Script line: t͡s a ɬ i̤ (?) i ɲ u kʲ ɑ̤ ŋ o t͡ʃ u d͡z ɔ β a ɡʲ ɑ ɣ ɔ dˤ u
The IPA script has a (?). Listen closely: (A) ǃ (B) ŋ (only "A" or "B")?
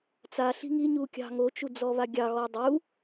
B